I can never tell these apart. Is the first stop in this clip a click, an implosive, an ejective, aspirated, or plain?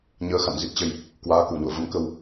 plain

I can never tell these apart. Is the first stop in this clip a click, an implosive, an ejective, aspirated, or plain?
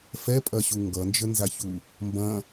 ejective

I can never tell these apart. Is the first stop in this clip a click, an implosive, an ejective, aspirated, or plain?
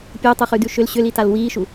plain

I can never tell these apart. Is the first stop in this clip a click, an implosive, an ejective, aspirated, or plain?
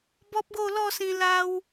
plain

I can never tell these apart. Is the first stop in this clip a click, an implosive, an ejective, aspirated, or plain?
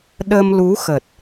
implosive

